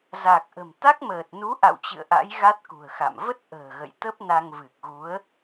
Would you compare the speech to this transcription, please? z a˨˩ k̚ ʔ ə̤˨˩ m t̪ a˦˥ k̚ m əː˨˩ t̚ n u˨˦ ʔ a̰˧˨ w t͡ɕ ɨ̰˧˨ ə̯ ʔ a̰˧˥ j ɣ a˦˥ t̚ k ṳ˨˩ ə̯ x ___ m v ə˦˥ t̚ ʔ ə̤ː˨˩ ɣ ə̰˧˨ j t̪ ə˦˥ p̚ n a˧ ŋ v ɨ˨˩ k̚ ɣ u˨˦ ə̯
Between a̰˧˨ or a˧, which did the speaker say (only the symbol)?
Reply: a̰˧˨